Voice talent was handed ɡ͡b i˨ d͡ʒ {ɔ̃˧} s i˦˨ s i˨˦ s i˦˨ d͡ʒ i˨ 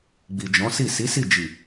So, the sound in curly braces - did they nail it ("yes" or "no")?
no